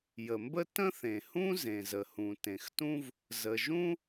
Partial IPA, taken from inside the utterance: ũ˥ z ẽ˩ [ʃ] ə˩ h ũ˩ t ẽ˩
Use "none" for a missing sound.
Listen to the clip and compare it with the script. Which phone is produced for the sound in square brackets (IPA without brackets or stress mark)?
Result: z